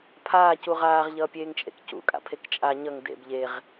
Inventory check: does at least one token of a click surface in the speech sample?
no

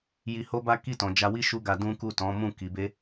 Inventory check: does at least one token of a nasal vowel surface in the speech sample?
yes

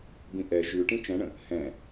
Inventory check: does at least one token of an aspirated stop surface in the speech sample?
no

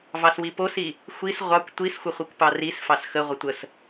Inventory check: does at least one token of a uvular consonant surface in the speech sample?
yes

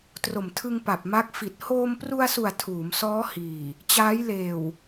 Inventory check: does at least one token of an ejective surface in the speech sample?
no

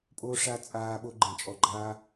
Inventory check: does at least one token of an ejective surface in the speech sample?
yes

